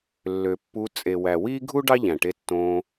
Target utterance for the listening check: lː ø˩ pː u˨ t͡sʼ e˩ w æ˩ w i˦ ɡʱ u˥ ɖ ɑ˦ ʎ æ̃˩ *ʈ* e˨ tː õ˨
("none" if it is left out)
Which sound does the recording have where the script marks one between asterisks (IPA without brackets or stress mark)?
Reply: ʈ